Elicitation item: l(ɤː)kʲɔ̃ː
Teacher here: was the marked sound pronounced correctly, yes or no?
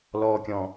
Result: no